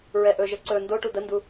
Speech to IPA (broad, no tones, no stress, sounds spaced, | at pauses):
ɹ ɛ ʔ ɵ ʒ ə ǀ ɵ n d o ʈ u d̪ ə n d u